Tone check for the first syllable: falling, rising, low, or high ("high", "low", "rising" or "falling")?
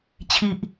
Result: low